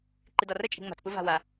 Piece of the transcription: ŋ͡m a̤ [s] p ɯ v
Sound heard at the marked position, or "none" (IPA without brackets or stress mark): t͡s